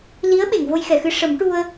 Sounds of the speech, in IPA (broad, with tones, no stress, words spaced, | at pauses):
li˧˥ə̯ ɓe˨˩˨ŋvo˧jxɛ˨˩˨xɨ˧ ʂə˨˩˦mʈu˧ə̯